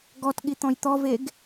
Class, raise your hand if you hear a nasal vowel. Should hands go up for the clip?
yes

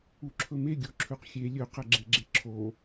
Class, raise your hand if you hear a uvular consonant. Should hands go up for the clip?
yes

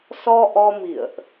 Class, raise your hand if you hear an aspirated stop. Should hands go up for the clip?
no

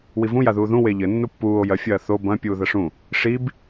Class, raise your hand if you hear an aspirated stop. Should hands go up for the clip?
no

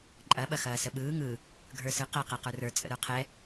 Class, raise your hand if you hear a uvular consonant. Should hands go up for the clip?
yes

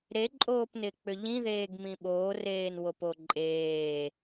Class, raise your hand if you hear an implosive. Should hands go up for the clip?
yes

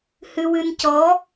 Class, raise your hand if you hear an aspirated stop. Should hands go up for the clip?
no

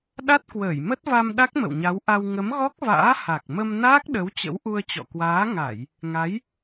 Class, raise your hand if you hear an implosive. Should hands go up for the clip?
yes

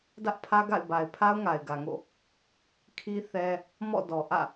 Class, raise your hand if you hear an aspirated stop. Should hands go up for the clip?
yes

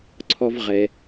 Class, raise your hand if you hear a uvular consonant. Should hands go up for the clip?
yes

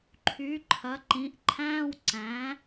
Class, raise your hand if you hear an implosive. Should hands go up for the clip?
no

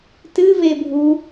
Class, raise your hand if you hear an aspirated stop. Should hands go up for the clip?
no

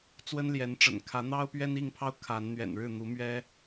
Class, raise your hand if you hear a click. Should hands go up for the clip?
no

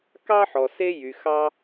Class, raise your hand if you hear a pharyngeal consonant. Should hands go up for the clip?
yes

